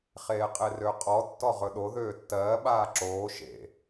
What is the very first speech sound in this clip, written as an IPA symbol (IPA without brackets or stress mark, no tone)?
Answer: χ